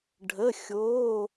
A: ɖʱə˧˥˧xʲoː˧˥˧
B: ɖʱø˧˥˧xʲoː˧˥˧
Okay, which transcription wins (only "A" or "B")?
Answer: A